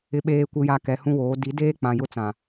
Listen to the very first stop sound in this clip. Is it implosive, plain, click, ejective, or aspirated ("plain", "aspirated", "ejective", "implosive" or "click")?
implosive